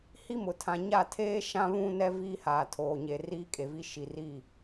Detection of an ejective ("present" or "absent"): present